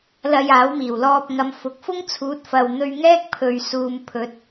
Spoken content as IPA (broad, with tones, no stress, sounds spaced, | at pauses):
l ɐ˧ j aː˨˥ w m iː˨˩ w l ɔː˧ p̚ ŋ ɐ˨˧ m f ʊ˨ k̚ f ʊ˥ ŋ t͡sʰ uː˨˥ t̚ f ɐ˨ w n̪ ɵ˧ ɥ ŋ ɛː˥ k̚ pʰ ɵ˨ ɥ s uː˨ m pʰ ɵ˨˥ t̚